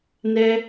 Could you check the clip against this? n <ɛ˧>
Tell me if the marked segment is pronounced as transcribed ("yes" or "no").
yes